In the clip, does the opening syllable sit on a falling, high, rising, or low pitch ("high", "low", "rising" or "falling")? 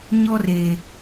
high